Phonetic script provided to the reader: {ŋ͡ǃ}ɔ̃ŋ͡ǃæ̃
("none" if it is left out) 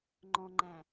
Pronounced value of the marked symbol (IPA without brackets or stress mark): ŋ͡ǃ